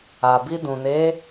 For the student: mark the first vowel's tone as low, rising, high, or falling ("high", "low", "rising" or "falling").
low